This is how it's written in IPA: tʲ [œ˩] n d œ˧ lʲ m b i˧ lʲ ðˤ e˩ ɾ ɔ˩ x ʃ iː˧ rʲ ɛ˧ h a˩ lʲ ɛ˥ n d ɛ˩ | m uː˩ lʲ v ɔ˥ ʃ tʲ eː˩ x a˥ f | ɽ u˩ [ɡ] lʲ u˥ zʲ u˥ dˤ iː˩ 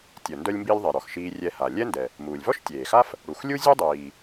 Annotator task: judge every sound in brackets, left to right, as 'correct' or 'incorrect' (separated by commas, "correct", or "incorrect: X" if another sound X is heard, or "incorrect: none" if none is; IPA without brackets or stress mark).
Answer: correct, incorrect: x